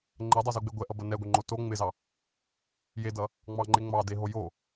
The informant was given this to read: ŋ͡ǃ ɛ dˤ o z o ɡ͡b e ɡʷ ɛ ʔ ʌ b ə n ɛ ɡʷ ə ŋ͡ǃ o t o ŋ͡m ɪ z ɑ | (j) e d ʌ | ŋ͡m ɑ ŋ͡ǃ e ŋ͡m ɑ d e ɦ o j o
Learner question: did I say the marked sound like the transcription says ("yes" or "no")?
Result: yes